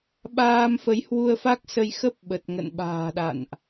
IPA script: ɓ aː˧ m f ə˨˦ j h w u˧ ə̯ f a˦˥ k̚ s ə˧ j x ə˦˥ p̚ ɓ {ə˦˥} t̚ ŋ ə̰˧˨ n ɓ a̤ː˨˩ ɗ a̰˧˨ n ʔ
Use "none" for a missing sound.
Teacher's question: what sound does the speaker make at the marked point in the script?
ə˨˩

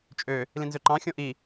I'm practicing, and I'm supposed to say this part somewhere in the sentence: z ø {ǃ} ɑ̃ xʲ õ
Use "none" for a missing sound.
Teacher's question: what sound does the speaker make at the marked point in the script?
ǃ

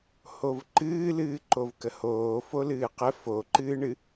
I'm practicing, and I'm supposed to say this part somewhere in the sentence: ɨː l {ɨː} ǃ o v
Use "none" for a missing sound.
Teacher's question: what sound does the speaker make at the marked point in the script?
ɨː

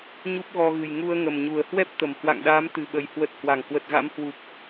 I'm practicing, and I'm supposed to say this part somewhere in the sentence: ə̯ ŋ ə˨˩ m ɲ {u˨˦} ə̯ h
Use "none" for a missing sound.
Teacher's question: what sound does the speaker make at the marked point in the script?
u˨˩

